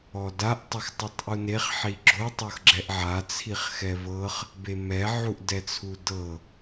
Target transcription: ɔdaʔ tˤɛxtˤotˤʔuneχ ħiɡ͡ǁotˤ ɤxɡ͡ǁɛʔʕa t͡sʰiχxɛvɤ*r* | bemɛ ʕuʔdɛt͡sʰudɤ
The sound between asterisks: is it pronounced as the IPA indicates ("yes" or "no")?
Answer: no